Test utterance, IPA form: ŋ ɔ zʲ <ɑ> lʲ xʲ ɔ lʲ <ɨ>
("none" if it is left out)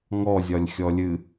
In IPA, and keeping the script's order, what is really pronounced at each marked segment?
ɒ, ɨ

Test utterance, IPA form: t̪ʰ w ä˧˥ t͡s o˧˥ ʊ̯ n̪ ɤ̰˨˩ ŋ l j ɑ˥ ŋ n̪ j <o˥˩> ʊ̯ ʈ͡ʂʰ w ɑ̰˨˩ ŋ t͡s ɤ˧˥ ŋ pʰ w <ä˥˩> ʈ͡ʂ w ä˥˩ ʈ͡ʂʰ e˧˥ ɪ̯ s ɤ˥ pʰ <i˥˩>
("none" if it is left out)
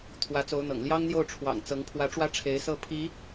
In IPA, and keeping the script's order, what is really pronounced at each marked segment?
o˥˩, ä˧˥, i˧˥

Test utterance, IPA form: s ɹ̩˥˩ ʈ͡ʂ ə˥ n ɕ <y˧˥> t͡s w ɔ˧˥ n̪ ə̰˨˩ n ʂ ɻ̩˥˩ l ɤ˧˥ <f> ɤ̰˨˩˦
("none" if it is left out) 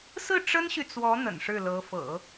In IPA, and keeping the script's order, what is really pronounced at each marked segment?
y˨, f

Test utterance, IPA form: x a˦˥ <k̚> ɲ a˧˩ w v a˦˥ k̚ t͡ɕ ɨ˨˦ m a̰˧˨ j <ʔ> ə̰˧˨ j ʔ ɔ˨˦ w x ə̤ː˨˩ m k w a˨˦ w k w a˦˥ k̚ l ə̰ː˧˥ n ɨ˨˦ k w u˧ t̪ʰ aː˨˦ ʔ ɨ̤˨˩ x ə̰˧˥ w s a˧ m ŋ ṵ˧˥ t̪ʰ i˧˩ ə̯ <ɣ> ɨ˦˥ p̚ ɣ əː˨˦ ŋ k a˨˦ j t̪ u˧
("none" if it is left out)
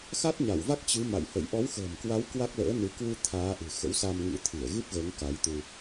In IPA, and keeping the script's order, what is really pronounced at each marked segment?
t̚, h, ɣ

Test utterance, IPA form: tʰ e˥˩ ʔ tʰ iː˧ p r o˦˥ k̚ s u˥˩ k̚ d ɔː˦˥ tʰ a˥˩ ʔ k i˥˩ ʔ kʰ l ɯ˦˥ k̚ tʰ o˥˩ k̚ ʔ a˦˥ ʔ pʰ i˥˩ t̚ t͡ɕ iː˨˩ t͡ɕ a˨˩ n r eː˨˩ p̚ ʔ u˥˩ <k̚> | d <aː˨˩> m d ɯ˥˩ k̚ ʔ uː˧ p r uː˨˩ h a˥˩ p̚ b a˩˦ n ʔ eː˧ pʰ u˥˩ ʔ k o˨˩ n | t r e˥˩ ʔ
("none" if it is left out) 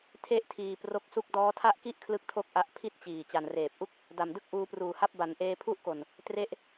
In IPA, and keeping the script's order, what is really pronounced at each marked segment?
k̚, a˨˩

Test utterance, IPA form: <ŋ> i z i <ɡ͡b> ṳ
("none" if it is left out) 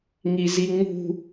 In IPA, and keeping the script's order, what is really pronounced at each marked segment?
ŋ, ŋ͡m

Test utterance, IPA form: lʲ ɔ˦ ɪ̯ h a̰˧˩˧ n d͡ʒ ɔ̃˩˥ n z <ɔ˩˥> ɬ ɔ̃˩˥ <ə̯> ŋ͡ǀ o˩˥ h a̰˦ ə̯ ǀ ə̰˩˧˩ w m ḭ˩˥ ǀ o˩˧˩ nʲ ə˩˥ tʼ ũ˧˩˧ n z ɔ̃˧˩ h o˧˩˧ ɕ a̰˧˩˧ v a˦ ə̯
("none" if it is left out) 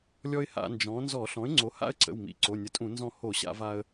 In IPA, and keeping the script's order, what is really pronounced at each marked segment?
ɔ˧˩˧, ɪ̯

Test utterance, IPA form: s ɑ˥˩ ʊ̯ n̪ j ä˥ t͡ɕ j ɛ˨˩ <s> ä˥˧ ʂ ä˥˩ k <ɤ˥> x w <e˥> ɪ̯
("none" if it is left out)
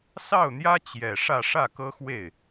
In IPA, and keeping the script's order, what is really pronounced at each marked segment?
ʂ, ɤ˥, e˥˩

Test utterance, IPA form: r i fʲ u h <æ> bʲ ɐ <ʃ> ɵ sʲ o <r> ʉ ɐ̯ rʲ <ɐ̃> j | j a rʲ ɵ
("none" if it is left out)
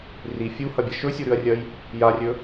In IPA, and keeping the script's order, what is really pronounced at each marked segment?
ɐ, ʃ, ɾ, ɐ

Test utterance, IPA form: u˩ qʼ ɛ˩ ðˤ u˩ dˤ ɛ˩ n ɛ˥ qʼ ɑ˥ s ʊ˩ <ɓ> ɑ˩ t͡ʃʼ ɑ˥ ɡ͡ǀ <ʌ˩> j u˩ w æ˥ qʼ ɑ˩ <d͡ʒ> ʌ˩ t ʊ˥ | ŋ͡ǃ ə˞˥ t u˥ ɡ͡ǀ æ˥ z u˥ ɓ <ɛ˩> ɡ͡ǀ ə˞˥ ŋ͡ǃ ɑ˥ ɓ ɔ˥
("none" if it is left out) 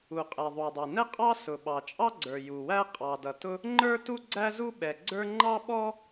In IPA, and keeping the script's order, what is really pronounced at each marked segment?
ɓ, ə˞˩, d, ɛ˩

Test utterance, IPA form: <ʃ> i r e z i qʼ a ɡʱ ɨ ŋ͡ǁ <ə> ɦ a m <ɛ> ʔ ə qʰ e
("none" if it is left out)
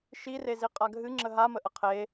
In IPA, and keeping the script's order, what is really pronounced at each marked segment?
ʃ, ə, ə

